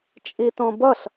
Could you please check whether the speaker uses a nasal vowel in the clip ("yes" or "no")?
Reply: yes